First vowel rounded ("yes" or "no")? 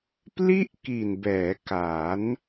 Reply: no